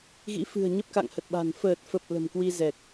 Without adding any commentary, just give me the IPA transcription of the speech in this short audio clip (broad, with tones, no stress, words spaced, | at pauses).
ɣḭ˧˥fɨ̤˨˩ə̯ ɲə˦˥p̚ka̰˧˨ŋhə˨˩t̚ɓa̤˨˩n fəː˨˩t̚fə˨˩p̚ lə̤˨˩mkwi˧ zɛ˨˩k̚